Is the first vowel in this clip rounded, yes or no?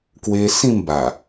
no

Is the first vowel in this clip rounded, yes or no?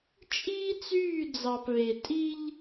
no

